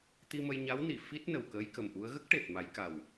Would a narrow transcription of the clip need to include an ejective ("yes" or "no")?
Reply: no